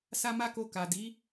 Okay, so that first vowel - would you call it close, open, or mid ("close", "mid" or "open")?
open